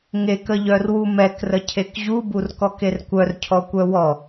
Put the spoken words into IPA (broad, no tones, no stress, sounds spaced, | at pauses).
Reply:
ŋ e k ə ʎ œ r w u m ɛ k r ə cʰ e k ʑ u b u r k ɔ k e r kʷ œ r cʰ ɔ kʷ œ w ɔ